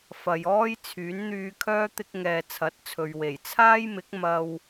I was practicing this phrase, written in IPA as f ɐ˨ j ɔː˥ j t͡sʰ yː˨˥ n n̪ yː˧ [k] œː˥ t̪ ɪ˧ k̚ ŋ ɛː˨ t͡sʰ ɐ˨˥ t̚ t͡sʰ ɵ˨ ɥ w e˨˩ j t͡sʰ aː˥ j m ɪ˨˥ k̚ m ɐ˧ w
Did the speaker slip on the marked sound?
yes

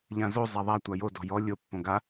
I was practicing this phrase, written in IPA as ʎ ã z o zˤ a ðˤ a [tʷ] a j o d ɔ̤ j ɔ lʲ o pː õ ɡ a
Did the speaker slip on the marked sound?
no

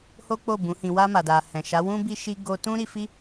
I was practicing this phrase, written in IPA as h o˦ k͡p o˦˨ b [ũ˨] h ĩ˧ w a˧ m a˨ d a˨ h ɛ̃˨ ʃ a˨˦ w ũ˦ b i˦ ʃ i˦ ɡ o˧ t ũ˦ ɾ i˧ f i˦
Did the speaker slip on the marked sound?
yes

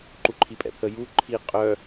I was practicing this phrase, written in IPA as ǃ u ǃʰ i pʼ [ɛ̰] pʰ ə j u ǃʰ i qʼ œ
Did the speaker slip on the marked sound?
no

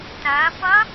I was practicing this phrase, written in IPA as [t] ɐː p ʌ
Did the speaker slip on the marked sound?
no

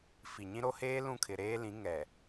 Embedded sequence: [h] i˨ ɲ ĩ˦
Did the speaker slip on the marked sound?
yes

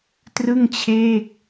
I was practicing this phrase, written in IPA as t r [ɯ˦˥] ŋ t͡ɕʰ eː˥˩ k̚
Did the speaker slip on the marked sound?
yes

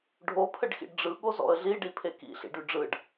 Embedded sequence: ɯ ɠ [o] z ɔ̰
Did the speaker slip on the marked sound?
no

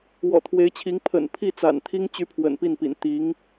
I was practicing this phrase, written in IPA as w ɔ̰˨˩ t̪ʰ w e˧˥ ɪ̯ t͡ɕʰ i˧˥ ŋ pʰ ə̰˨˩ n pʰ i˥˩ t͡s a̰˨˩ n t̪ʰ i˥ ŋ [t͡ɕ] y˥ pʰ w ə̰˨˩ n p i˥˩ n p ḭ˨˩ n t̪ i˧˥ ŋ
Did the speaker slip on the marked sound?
no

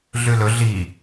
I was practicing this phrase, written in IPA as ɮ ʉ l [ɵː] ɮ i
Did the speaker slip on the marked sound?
yes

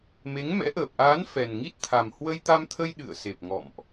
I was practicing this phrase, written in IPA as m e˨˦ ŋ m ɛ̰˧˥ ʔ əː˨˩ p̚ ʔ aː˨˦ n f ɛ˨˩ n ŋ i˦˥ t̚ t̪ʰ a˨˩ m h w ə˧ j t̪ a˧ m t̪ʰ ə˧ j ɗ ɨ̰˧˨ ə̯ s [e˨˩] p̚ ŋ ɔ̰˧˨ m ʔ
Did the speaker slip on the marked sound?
no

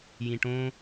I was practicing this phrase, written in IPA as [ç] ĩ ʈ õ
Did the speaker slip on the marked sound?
yes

